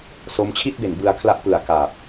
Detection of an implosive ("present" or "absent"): absent